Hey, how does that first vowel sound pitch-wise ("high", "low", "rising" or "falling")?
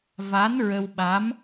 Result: rising